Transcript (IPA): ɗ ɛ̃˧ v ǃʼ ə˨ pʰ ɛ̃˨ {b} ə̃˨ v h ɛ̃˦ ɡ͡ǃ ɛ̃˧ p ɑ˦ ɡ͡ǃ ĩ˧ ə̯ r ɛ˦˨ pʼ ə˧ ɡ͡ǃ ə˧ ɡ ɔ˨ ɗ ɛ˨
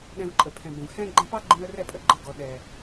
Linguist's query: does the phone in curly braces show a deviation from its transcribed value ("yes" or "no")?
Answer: no